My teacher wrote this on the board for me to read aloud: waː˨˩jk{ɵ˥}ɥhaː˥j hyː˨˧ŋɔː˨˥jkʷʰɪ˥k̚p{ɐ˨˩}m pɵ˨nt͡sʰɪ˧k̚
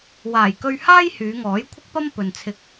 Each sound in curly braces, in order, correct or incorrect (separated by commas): incorrect, incorrect